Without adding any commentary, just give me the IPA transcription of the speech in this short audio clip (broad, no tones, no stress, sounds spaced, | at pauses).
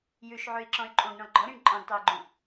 j ʉ ʃ ʕ ʉ i̯ ǁ ɔ̃ y̯ ǃʼ õ ɡ ɳ ɔ̃ ɡ͡ǃ ɔ ɾ ĩ ɳ ǃʼ ɔ̃ ɡ tˤ o u̯ ɡ͡ǃ õ